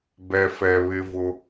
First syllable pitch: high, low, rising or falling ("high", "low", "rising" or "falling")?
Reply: low